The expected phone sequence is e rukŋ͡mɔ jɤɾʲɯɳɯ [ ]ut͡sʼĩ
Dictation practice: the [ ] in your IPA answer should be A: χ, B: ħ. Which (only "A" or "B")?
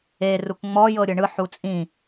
B